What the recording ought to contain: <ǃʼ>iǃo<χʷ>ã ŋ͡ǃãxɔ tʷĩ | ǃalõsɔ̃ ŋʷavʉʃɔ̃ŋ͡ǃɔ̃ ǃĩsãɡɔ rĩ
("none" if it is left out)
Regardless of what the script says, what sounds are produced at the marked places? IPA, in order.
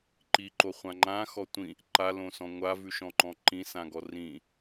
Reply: ǃ, χʷ

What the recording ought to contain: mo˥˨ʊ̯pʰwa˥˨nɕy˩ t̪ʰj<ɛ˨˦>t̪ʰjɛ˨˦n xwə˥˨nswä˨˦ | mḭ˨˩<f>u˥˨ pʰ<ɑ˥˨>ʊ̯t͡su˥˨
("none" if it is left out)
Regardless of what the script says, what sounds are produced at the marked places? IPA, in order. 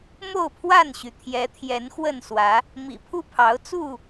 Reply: ɛ˨˦, pʰ, ɑ˨˦

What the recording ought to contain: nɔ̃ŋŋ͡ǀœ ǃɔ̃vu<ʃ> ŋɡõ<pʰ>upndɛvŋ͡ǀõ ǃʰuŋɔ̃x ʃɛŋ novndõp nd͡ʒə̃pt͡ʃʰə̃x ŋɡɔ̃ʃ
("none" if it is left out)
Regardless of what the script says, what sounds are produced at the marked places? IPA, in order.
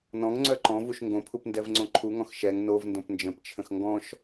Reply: ʃ, pʰ

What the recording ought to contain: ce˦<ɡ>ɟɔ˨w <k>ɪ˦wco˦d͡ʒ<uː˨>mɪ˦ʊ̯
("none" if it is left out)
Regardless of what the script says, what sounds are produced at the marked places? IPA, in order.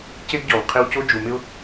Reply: ɡ, qʰ, u˨

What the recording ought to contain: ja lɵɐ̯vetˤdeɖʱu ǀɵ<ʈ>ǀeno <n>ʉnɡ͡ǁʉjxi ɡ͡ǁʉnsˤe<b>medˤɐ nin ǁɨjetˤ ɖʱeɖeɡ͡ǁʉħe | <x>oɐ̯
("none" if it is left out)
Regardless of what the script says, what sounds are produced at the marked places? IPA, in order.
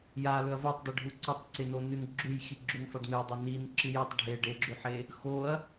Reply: tˤ, n, ɖ, x

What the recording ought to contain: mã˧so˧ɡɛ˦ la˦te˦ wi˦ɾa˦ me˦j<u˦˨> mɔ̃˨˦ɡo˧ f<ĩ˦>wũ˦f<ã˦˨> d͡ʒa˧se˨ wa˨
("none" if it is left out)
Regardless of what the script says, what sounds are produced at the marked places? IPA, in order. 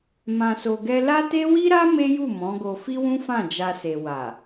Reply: u˦˨, i˦, ã˦˨

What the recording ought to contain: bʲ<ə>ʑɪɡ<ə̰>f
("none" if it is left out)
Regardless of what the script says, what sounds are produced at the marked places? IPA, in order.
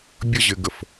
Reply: ə, ə

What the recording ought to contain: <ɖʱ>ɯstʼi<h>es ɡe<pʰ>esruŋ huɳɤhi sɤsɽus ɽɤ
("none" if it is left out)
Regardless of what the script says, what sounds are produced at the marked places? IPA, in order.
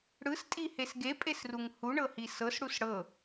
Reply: ɽ, h, pʼ

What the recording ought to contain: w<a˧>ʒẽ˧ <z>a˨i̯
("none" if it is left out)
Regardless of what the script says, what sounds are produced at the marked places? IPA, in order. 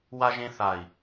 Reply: a˧, θ

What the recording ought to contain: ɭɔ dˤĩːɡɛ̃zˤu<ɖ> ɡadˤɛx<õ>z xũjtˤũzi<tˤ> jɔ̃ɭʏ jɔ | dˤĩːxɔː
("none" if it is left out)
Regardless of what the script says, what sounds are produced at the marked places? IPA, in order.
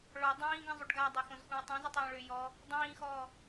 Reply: ɖ, õ, tˤ

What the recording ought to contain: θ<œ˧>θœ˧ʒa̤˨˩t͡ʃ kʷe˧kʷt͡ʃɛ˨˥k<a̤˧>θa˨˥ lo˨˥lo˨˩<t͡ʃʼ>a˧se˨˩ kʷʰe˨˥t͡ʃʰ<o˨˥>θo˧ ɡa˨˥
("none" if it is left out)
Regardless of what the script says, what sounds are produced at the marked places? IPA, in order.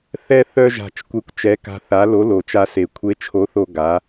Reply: ɛ˧, a̤˧, t͡ʃ, o˨˥

